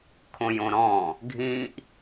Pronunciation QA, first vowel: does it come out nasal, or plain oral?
nasal